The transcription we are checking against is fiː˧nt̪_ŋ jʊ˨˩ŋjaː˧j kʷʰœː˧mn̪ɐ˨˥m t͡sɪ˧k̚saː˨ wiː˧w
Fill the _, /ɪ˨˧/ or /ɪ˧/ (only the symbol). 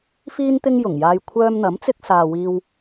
ɪ˧